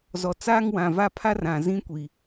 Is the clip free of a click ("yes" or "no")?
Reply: yes